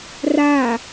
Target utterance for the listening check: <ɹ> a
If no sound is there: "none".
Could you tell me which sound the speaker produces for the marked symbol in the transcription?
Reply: r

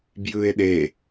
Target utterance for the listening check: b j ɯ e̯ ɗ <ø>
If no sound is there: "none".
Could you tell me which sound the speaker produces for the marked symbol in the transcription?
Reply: e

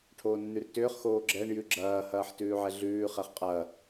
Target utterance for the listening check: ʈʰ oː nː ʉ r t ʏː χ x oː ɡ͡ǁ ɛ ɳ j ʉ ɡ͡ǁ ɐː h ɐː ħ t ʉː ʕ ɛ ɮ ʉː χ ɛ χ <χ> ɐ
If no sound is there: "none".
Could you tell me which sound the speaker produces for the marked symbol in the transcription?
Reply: qʼ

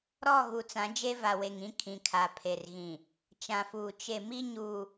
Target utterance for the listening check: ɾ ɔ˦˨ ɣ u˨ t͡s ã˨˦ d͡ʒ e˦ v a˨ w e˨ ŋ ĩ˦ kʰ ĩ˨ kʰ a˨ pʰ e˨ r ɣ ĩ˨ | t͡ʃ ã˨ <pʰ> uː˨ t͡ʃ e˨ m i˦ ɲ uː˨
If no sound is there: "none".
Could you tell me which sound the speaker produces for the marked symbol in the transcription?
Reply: f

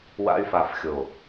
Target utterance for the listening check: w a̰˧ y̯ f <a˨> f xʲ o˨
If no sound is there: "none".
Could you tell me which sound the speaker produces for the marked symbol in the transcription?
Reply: a˨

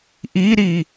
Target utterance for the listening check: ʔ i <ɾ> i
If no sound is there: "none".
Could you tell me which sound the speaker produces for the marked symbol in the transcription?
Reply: ɾ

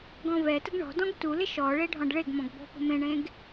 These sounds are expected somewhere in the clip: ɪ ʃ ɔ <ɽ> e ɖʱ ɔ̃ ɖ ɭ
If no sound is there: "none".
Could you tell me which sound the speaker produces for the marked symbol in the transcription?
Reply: ɭ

